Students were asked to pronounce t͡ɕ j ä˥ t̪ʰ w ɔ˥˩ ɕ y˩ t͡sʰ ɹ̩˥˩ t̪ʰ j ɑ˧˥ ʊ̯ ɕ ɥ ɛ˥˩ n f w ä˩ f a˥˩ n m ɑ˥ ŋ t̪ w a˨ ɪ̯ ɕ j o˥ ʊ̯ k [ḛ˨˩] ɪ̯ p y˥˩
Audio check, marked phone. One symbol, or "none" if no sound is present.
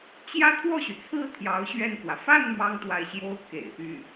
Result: ḛ˨˩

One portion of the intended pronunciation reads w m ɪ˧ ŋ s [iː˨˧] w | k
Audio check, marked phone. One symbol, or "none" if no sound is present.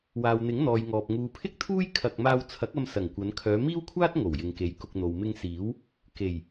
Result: iː˨˥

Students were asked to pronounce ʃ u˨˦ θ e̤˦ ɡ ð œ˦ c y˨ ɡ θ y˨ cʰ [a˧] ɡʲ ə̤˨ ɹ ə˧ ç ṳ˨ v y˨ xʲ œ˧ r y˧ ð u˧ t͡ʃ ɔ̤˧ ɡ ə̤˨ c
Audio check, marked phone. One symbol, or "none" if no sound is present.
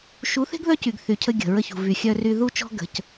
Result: ə˧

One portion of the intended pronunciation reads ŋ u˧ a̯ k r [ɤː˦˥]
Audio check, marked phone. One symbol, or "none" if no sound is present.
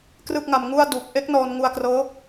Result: ɤː˦˥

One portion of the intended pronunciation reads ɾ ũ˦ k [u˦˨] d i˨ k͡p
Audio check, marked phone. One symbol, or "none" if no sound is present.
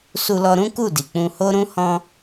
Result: u˦˨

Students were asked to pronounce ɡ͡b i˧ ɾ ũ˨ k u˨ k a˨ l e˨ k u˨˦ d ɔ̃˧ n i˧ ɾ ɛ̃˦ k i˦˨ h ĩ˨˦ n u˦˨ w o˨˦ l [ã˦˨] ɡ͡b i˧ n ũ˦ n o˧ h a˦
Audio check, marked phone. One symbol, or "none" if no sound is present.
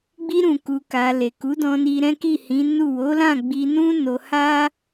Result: ã˦˨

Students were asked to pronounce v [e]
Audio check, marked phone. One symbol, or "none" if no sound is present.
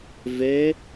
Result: e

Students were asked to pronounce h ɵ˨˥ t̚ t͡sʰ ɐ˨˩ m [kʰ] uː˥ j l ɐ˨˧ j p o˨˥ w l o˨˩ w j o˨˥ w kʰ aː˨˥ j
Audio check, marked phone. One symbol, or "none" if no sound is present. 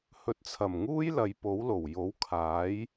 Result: ŋ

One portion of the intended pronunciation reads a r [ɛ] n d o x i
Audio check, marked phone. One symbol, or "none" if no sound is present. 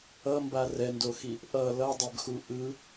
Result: ɛ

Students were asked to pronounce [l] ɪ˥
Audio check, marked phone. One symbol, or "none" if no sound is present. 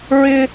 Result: ɹ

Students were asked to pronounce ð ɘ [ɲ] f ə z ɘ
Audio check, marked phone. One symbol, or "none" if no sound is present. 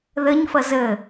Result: ɲ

